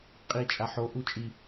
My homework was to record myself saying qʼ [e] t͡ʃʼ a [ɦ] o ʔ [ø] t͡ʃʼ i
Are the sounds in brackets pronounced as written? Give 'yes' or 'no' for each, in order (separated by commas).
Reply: no, no, no